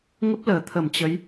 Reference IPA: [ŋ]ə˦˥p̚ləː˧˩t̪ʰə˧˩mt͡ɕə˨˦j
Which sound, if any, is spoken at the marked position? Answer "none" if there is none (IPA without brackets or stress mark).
ŋ